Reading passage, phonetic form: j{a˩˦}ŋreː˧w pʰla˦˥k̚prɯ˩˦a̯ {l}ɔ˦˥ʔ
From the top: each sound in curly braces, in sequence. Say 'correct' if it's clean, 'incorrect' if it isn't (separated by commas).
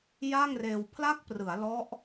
incorrect, correct